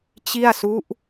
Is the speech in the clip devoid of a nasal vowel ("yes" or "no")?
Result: yes